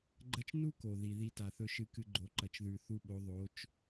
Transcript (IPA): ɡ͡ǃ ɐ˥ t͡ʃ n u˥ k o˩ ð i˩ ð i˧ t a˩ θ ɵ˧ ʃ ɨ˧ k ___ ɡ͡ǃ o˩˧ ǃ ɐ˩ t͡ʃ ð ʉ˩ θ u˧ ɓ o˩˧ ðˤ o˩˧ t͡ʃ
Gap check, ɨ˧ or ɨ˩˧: ɨ˧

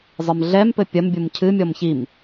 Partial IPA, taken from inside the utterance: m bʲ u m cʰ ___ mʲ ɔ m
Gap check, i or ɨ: ɨ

